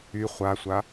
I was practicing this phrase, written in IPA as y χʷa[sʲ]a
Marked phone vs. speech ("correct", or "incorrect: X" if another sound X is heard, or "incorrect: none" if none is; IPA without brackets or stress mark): incorrect: sʷ